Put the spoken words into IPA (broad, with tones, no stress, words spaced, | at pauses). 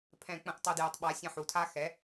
pʰɛ̃˧˩˧k͡pə̃˧˩ʔ tˤu˧˩dju˩˧tˤɓa˩˥ sʲə̃˧˩ħu˩˧tʰa˥ xɛ˩˥